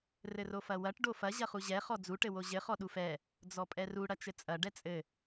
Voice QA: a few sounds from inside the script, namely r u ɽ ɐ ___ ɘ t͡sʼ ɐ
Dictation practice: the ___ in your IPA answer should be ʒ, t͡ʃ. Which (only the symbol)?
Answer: t͡ʃ